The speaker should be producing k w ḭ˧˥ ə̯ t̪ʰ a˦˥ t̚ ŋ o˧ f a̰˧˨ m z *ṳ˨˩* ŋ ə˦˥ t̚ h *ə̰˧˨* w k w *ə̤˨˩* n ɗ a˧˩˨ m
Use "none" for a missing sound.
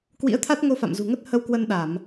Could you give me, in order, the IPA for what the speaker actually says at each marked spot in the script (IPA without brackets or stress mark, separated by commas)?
ṳ˨˩, ə˧, ə˧